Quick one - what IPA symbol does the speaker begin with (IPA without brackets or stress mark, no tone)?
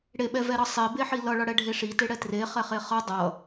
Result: ɽ